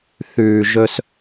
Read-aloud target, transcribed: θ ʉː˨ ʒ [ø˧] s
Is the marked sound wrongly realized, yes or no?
yes